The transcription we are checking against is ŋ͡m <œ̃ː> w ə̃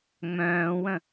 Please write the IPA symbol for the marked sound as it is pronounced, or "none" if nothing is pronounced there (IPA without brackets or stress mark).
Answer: œ̃ː